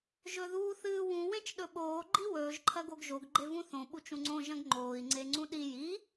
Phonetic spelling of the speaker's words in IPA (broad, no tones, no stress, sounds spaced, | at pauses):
ʒ ɵ ð uː θ ɨː w ũ w ẽ t͡ʃ ɗ ɵ ɓ oː ɡ͡ǃ i w ɵː ʒ ǃʰ ɐ ɡ o ɡ ʒ o ɡ ɡ͡ǃ e v ũ θ õ ɓ u t͡ʃ ũ ŋ͡ǀ õ ʒ ɐ̃ ɡ ŋ͡ǃ oː i̯ ŋ͡ǀ e ŋ͡ǀ ũ ɗ i j i